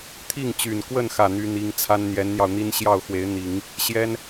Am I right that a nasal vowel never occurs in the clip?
yes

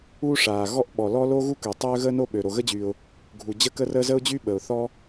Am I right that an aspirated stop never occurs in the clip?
yes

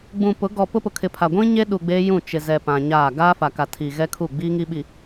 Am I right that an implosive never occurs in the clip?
no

